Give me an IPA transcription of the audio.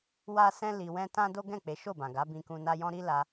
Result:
wa˦sɛ̃˦ li˧wɛ̃˦ tã˦ do˦ɡɛ̃˦˨ k͡pe˨˦ ʃo˦˨bã˨ ɡa˨˦bĩ˧kũ˧ na˧jɔ̃˧ ɾi˦la˧

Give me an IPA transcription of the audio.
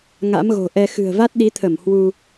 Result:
ŋa̰˧˥mɣo̤˨˩ʔɛ˧ xɨ̤˨˩ə̯va˦˥t̚ɗi˨˦t̪ʰə˧˩m hwu˧

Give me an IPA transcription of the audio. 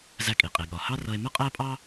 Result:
zæ˧kʼi˩qʼi˩ ɠɒ˩hɑ˥ rʌ˧e̯mə˥qʼæ˥pʼɑ˥

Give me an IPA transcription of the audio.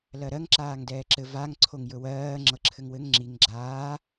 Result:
lɜɾɜŋ ǁaːŋdɛːǁɘ vaŋ ǀʰoŋjɵwɜː ŋ͡ǁɤǁʰɘŋwɘŋ ŋ͡ǁiŋ ɡ͡ǁaː

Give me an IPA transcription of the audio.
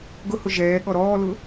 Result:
ɡʊhʊ ʒɛː ɠɔɾɔːlʊ

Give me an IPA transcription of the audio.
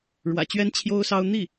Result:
ɻwä̰˨˩t͡ɕɥɛ˥n t͡ɕʰjo˥ʊ̯sɑ˥ʊ̯ n̪i˥˩

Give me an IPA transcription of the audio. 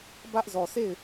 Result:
bä˦ʔzɔ˨sʰe˦˨ɪ̯

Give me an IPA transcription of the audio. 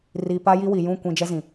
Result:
ri˨ pa˦ji˦wi˨ jũ˦˨kʷĩ˨ d͡ʒɛ˦zĩ˨

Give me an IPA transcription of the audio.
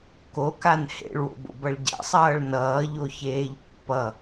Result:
kokan hḛɭwo̰bo̰bʌɭ ɟa̰sˤʌːɭ nʌːʎoçeːʎ pːʌ

